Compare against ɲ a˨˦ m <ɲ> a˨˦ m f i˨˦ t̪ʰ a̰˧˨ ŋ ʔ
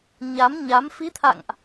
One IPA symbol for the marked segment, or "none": ɲ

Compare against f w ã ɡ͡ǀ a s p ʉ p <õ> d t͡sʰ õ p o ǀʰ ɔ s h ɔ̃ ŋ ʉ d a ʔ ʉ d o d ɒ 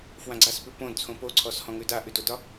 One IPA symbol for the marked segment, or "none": õ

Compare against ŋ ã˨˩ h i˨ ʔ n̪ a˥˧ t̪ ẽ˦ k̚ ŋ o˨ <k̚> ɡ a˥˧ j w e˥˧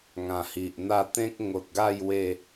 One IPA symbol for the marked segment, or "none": t̚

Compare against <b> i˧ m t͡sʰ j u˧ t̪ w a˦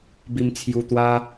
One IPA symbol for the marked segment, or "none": b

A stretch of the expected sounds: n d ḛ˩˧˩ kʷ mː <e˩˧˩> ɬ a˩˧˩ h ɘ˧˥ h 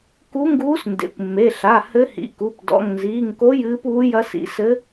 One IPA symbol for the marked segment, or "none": e˩˧˩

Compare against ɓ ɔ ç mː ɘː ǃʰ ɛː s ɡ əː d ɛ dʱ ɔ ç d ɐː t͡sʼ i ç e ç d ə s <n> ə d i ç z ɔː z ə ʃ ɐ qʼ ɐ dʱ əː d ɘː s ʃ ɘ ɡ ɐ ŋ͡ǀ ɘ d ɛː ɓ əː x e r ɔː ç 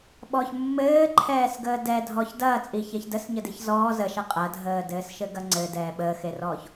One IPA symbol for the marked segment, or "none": ɲ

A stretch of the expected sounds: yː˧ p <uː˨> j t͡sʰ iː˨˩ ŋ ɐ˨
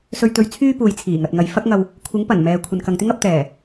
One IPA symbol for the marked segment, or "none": uː˨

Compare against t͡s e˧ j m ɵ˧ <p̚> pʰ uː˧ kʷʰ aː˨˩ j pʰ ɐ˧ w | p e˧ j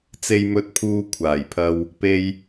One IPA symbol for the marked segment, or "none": t̚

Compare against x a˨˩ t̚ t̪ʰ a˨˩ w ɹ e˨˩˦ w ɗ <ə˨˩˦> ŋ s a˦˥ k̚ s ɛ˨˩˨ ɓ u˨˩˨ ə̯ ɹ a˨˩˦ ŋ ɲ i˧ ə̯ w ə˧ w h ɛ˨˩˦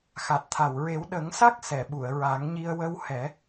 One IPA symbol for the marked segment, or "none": ə˨˩˦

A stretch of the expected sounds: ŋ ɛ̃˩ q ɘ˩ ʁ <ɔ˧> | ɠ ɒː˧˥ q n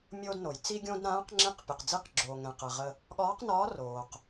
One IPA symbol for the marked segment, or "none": ə˧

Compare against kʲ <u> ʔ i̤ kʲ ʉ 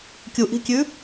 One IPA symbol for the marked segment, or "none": u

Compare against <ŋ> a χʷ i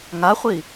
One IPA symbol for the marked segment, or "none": ŋ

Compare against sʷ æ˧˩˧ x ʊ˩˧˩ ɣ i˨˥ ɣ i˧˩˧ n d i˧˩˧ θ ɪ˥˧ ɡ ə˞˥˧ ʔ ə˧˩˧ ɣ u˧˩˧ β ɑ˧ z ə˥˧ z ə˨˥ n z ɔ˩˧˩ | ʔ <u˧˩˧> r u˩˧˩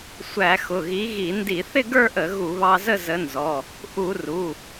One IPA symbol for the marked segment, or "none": u˧˩˧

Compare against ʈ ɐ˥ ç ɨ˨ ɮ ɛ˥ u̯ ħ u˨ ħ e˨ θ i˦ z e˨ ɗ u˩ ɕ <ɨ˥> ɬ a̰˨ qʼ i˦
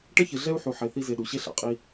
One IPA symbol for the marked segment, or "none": e˥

